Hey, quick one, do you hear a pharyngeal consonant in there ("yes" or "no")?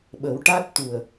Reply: no